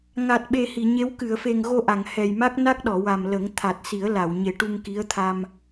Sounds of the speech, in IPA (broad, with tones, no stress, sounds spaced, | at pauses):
ŋ a˨˩ t̚ ɓ e˨˩ h i˨˩˨ ɲ e˧˥ w k ɨ˨˩˨ ə̯ f e˨˩ ŋ ɣ o˧ ʔ a˨˩˨ ŋ h ɛ˨˩ j m a˦˥ k̚ n a˦˥ k̚ ɗ ɔ˨˩˨ w a˨˩ m l ə˨˩˦ ŋ t̪ʰ a˨˩ t̚ s i˨˩˦ ə̯ l a˨˩˨ w ɲ e˨˩ ʈ u˧ ŋ k i˧˥ ə̯ t̪ʰ a˧ m